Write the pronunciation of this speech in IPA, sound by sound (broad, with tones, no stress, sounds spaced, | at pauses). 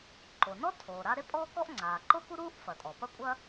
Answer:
ǃ o˩ n ɔ˥ tʰ oː˩ ɾ a˥ ɾ e˥ pʼ ɔː˥ k ɔ˥ ʔ ŋ͡ǀ aː˩ ǃ o˥ k u˥ ɾ uː˥ ʔ f ɐ˩ tʼ ɔ˩ p ɐ˥ kʷʼ ɐ˥